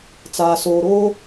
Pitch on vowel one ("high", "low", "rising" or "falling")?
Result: low